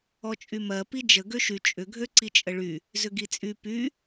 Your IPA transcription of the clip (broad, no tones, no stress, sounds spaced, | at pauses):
ɔ t͡ʃʼ y m ɜ p i d͡ʒ ə ɡ ø ʃ y t͡ʃʼ ʏ ɡʱ ø ǀ i t͡ʃʼ ə ɭ y | z ʏ ɡ i t͡sʼ y p y